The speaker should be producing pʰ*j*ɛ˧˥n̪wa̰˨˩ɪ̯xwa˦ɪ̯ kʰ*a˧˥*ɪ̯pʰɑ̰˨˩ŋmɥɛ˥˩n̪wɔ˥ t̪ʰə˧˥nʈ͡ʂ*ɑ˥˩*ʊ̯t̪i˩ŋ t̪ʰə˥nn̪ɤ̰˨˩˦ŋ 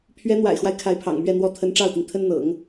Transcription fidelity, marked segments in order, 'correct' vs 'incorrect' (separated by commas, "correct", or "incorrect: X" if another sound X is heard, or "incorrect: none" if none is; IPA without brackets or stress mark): incorrect: ɥ, correct, correct